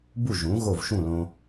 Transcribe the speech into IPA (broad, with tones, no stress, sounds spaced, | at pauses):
b u˥˩ ʒ ũ˩˥ ɣ o˥˩ v ʃ ũ˥˩ l õ˧